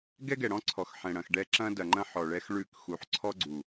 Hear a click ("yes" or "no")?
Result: yes